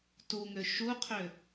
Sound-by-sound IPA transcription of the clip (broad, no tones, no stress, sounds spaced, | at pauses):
t u ŋ ø ʃ u qʰ ø